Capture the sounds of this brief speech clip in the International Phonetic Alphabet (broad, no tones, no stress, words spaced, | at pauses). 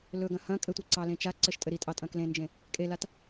lɵɡɐ̃ hɐ̃ kʼɘtʷɘ ǀɑlẽt͡ʃa ǀɘʃtʼɘɾitʼɑ tʼɐ̃klẽnd͡ʒẽ | kʼelat